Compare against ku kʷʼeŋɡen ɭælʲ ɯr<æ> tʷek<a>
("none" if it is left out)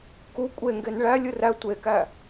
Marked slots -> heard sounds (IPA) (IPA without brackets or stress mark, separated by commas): æ, æ